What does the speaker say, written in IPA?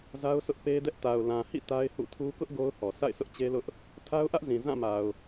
z a˦ ʊ̯ s ʊ˦ ʔ p e˦ d ɛ˦ ʔ t a˨ ʊ̯ l ã˨ h ḭ˦˨ t a˦ ɪ̯ h ṵ˦˨ tʰ u˦ k ʊ˦ ʔ ɡ o˦ ʊ̯ h ɔ˨ s a̰˦˨ ɪ̯ sʰ ʊ˦ ʔ t͡ɕ e˦ l ʊ˦ ʔ | tʰ a˦ ʊ̯ ʔ ä˦ ʔ z ĩ˨ z ã˦˨ m a˨ ʊ̯

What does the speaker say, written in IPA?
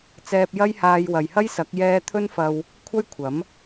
t͡s ɛː˧ p̚ j ɐ˥ j h aː˧ j w ɐ˨ j h ɐ˥ j s ɐ˨˥ k̚ j ɛː˧ t̪ʰ ɵ˥ n f ɐ˧ w | kʷʰ ɐ˥ j kʷʰ ɐ˨˥ m

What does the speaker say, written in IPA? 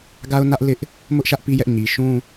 ɡ a˦ ʊ̯ n ä˦ ʔ l ɪ˦ ʔ | m ʊ˦ ʔ ʃ ä˦ ʔ p i˦ j ɛ˦ ʔ ɲ i˨ ʃ ũ˦

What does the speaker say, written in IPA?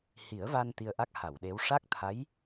h i˨˩˦ ə̯ v a˧ n t̪ i˧ ə̯ ʔ a˦˥ k̚ h a˨˩˨ w ɗ e˧˥ w ʂ a˦˥ k̚ t̪ʰ a˧˥ j

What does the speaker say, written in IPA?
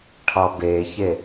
ʈʰ ɒ b e ç e

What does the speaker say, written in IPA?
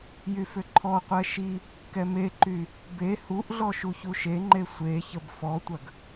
j y f ʏ ǃʰ ɔ qʷ ɛ ʃ i | k ɛ m e ǃ y | b e h u ʔ ɮ ɔ ʃ u ç u ʃ e ŋ͡ǃ e sʷ e ç ə b f ɔ tʷ ɐ ɡ

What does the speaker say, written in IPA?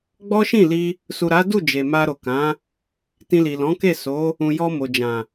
ɡ͡b ɔ˦ ʃ ĩ˦˨ l i˧ | s u˨ ɾ a˨˦ d u˦˨ d͡ʒ e˨ m a˧ ɾ o˨ k ã˨˦ | t ĩ˧ l i˨ l ɔ̃˨˦ k e˦˨ s o˨˦ | ũ˨ j ɔ˧ m o˨ d͡ʒ ã˨

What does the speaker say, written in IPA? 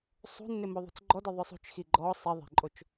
sˤ ṳ nː ɪ m o ðˤ ṳ t͡s ɡ͡ǃ ɔ d ɪ ðˤ ʊ sˤ ṳ t͡ʃ x i ɡ͡ǃ ɔ sˤ i ðˤ e̤ ǃʼ o t͡ʃ

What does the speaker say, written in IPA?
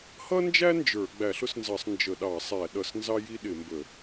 h ʌ˥ n d͡ʒ æ˥ n d͡ʒ ə˞˧˩˧ ɡ͡b æ˧˩˧ ɬ ʊ˥ s n z ɑ˧˩˧ sˤ n d͡ʒ ə˧˩˧ ɗ ɑ˧˩˧ sˤ æ˧˩˧ ɗ ʌ˧˩˧ s n z ɑ˥ j i˥ ɗ ɪ˧˩˧ m b ə˧˩˧

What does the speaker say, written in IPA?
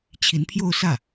t͡ɕʰ i˧˥ n pʰ j o˥˧ ʊ̯ s ä˥˩

